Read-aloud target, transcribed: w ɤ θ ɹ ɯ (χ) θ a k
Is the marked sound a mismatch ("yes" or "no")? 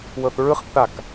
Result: no